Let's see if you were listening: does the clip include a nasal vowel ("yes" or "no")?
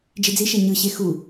no